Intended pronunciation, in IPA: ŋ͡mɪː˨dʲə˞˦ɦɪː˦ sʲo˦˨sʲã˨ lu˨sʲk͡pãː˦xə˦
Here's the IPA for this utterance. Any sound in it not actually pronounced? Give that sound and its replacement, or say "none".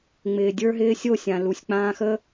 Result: none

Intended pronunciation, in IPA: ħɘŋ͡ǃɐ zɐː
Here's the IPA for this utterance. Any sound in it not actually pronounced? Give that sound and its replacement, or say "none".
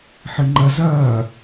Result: none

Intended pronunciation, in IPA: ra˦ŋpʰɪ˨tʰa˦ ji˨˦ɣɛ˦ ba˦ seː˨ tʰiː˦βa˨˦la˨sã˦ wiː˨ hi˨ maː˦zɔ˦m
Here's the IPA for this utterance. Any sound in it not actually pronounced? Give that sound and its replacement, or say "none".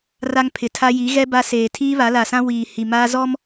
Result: none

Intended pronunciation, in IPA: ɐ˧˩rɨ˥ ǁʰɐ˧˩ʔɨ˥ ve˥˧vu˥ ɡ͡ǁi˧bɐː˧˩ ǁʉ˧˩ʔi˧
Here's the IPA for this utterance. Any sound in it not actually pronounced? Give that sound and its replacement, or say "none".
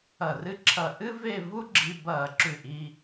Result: none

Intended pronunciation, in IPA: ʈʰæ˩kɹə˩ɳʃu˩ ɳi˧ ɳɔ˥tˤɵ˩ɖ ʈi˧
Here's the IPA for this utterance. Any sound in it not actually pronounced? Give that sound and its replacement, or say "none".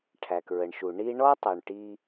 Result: ɖ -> ɳ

